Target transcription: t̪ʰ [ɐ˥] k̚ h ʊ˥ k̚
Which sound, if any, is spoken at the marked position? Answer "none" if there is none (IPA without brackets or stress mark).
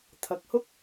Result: ɐ˨˥